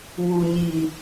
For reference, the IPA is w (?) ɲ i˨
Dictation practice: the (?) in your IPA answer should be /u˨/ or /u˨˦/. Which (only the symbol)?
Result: u˨